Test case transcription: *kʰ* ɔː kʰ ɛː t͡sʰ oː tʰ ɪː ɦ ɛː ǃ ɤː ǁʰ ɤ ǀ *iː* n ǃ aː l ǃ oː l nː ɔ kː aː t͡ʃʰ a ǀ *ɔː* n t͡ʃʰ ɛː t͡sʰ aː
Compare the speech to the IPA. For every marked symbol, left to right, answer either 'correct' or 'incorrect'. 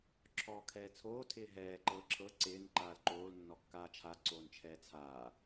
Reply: incorrect, incorrect, incorrect

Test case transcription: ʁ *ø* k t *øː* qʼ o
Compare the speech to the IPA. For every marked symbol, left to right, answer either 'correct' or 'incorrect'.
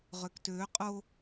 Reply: correct, correct

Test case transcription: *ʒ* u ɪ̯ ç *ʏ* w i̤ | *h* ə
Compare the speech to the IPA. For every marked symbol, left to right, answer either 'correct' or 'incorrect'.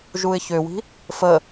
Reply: correct, correct, incorrect

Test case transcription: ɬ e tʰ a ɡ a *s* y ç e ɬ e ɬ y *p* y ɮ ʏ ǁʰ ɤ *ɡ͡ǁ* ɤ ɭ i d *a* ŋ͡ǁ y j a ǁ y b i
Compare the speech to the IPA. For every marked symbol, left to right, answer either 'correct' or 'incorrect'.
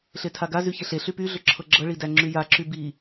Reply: incorrect, correct, correct, incorrect

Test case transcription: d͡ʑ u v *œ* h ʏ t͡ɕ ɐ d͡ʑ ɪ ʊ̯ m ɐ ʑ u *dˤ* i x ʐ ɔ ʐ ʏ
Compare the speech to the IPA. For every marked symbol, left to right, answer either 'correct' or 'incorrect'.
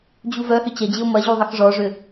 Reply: correct, incorrect

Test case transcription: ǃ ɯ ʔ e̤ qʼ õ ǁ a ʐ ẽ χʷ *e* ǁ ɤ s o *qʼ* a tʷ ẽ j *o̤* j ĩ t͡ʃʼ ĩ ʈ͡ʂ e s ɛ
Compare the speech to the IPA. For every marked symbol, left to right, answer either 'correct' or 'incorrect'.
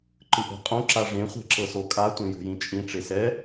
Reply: incorrect, incorrect, correct

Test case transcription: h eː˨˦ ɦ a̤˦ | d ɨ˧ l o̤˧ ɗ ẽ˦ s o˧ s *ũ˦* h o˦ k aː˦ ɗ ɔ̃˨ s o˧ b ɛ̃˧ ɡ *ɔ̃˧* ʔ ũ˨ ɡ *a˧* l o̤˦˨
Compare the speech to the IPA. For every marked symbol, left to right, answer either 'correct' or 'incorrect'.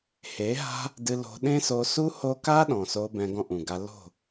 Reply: incorrect, incorrect, correct

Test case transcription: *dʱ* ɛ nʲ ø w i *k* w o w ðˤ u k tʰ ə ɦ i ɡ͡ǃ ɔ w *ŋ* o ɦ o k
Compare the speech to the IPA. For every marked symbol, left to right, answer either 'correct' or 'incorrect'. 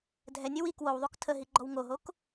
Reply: correct, correct, correct

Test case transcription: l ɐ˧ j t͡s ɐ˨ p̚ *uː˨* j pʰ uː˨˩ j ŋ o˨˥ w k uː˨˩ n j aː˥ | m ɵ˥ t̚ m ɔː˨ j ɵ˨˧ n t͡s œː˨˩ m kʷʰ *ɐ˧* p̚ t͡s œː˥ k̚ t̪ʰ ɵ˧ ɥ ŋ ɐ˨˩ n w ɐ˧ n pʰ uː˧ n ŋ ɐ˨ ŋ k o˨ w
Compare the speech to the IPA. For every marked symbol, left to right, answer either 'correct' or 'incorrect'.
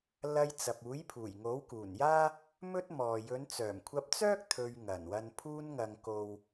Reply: incorrect, correct

